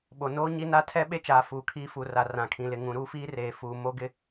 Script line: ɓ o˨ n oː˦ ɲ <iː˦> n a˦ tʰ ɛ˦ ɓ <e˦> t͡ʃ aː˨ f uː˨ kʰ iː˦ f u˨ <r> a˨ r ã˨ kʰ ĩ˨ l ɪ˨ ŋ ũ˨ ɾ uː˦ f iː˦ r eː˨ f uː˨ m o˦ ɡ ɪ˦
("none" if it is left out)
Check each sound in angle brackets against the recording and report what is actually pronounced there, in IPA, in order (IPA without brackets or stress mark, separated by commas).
i˦, e˦, r